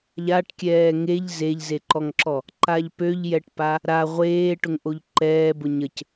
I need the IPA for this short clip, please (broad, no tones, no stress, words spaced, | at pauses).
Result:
ʎaʈkʲɛː ŋeʎ zeʎzeǃɔŋǁɔ | ǃaʎpøʎjɛʈpa | ɾa ʁʷeːʈʊŋʔoʎ ǃɛːbʊ ɲəc